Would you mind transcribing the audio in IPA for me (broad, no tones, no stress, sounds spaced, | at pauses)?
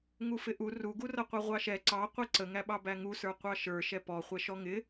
ŋ u f ɪ ʔ u r u ɡ u r ʌ qʷ ɛ ʁʷ ɑ ʃ ɛ ǀ ɑ qʷ i ǀ ə ŋ æ ɓ ɑ b æ ŋ u s ə˞ qʷ ɑ ʃ ə˞ ʃ ɛ p ɔ χʷ ɛ ʃ ɔ ŋ ɪ